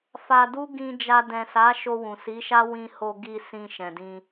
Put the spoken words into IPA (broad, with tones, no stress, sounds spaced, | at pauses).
f a˧ d u˦ ɡ ĩ˧ d͡ʒ a˧ d ɛ̃˨ s a˨˦ ʃ o˧ w ũ˨ s i˨˦ ʃ a˦ w ĩ˧ h o˧ ɡ i˧ s ĩ˧ ʃ ɛ̃˨ d ĩ˧